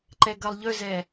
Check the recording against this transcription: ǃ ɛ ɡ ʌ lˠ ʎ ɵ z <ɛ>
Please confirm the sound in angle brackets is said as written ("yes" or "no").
yes